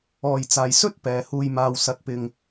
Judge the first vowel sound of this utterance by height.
mid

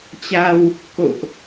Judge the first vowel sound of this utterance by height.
low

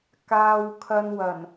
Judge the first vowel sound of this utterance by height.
low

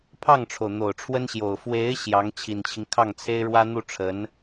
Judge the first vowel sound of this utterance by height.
low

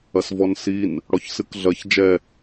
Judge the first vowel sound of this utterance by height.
low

